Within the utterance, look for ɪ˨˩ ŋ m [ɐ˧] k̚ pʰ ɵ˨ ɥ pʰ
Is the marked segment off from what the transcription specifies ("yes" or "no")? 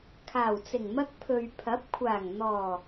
no